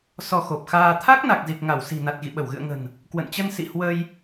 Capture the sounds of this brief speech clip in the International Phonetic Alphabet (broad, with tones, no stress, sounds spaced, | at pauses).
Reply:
s ɔ˧ x o˨˩ p̚ x aː˧ t̪ʰ a˦˥ k̚ n a˨˩ k̚ z i˨˩ k̚ ŋ a˧˩ w s i̤˨˩ n a˨˩ t̚ ɣ ḭ˧˨ ɓ ə˧˩ w ɣ ɨ̰˧˨ ə̯ ŋ ə̤˨˩ n | k w ə̰˧˨ n t͡ɕ ə˧ n s ḭ˧˨ h w ə˧ j